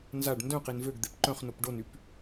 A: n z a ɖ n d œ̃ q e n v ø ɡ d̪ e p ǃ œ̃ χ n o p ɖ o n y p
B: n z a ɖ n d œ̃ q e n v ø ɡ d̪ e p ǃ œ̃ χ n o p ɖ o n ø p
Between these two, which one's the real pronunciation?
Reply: A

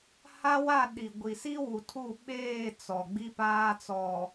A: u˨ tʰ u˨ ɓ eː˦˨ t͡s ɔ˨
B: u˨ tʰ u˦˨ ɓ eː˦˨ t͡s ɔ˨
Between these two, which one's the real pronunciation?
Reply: B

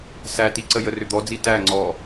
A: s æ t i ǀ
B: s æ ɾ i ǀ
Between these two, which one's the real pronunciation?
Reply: A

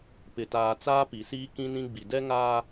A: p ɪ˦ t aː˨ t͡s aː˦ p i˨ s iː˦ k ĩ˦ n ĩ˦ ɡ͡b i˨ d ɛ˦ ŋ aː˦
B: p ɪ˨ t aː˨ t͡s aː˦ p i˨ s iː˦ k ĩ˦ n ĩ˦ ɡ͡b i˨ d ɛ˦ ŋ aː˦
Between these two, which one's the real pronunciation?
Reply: B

